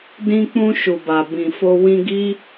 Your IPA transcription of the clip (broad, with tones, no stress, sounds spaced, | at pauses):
d ĩ˧ k͡p ũ˧ ʃ u˨ b a˨ b ĩ˨ f o˧ w ĩ˧ ɡ i˦